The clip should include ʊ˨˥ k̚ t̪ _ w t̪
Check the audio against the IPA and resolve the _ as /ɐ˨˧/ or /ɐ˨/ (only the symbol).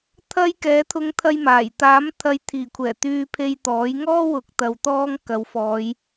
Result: ɐ˨